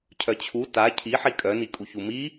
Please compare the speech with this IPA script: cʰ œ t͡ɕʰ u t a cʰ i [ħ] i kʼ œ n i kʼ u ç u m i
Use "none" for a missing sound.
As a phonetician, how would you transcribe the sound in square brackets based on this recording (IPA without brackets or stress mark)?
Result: ħ